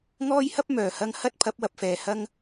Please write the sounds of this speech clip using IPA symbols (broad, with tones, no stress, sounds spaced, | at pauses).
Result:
ŋ ɔː˥ j h ɐ˥ p̚ m œː˨˩ h ɐ˧ ŋ h ɐ˥ t̚ pʰ ɐ˨˥ p̚ w ɐ˨ p̚ f ɛː˨˩ h ɐ˧ ŋ